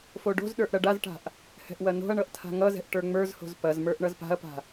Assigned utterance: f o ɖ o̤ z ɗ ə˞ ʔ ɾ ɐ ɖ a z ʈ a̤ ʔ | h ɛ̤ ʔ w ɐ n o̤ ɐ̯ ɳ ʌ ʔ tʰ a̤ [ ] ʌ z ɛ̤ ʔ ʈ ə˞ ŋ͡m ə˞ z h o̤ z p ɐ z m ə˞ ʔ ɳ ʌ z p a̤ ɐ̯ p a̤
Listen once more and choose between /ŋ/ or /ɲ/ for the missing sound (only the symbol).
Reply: ŋ